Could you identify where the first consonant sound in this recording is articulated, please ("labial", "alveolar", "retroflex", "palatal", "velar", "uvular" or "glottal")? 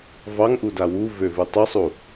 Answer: labial